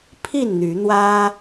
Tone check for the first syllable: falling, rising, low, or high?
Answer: falling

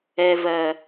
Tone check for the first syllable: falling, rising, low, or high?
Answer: low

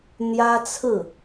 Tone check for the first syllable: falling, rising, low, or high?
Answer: high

